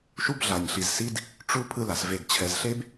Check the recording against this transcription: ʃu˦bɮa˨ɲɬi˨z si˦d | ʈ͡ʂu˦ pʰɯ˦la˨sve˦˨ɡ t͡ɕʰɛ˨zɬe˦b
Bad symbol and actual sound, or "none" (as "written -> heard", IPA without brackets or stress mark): none